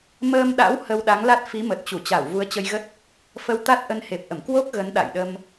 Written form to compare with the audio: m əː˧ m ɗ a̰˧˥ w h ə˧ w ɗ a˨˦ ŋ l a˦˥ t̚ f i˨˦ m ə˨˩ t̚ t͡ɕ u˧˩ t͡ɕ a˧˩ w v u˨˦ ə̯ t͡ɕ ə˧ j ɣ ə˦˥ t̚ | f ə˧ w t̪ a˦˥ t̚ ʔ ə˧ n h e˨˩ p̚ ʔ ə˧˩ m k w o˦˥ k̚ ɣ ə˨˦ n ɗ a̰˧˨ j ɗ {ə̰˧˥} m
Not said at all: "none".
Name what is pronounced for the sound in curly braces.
ə˧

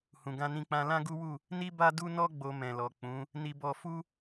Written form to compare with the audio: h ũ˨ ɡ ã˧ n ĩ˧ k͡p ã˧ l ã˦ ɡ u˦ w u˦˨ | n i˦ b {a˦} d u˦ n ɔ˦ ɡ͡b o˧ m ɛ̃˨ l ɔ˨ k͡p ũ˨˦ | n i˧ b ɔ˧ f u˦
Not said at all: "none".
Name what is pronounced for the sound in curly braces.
a˦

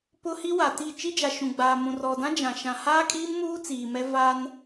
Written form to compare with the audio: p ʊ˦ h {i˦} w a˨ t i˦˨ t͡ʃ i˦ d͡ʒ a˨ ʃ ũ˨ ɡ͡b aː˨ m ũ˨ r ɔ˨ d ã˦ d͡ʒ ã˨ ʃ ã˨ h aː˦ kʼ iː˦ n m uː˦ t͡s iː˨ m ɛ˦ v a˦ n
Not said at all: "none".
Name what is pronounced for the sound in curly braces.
i˦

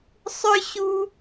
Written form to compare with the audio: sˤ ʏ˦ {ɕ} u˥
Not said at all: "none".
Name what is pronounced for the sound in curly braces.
ɕ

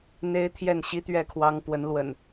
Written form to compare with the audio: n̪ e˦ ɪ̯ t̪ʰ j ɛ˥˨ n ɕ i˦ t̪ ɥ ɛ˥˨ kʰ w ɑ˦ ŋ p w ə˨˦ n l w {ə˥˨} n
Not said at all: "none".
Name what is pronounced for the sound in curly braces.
ə̰˨˩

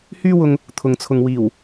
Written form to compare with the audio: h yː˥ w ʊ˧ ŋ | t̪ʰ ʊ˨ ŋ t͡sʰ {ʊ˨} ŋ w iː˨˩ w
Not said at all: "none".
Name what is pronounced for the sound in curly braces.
ʊ˨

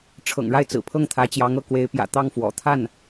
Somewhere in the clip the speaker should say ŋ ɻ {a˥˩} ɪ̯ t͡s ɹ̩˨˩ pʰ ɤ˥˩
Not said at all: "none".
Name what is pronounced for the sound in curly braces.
a˥˩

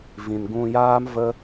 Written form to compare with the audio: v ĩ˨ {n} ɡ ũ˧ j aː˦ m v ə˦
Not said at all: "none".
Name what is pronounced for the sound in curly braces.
n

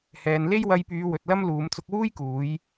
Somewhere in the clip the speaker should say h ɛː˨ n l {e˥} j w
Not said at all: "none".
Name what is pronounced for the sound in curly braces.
e˥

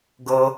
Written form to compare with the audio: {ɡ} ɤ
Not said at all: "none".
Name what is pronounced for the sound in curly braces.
ɡ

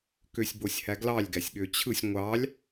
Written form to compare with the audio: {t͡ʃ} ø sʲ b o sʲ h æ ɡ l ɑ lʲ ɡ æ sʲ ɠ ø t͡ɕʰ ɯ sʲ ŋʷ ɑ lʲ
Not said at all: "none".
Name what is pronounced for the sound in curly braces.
k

